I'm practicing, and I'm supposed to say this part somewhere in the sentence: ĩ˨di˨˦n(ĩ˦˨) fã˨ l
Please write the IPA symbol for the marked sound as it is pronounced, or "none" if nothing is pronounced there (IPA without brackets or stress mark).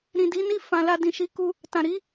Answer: i˦˨